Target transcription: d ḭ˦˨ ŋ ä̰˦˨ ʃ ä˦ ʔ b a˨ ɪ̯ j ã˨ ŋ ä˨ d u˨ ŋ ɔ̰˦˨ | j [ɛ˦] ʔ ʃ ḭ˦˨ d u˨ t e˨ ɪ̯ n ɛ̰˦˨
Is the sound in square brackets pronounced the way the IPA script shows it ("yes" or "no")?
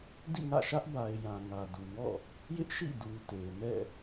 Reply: no